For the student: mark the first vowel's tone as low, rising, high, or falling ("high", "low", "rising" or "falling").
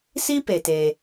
high